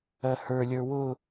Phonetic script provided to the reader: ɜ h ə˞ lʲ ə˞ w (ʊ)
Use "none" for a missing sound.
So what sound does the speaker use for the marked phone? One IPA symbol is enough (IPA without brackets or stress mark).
ʊ